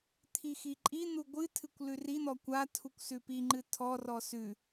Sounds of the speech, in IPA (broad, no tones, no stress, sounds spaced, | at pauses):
t̪ʰ i x i ǃʼ i n̪ u ɡʷ ɨ tʰ ɨ kʷ l ʉ r i n̪ ɔ kʷ a tʰ u kʷ s ʉ p i ŋ͡ǃ ɨ tʰ ɔ r ɔ s ʉ